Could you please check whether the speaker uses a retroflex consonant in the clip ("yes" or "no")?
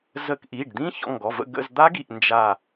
yes